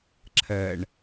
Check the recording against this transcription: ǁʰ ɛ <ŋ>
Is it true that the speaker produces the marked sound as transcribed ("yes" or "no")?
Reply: no